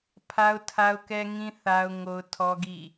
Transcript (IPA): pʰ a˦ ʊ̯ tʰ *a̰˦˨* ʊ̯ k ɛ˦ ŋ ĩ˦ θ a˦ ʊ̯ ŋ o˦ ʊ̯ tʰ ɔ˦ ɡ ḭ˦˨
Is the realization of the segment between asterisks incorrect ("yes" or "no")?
yes